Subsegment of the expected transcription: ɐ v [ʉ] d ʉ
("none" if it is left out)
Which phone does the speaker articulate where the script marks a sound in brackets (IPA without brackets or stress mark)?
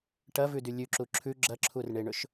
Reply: ʉ